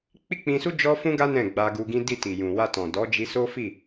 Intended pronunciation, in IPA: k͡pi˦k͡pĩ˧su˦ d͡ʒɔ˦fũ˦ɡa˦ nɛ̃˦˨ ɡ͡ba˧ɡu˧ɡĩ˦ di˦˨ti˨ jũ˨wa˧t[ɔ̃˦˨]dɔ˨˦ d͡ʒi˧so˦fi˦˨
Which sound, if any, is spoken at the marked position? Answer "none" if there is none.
ɔ̃˨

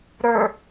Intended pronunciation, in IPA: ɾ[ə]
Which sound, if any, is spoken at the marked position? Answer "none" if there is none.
ə˞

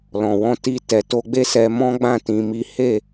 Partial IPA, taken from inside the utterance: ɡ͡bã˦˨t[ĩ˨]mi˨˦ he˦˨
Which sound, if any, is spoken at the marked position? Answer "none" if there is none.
ĩ˨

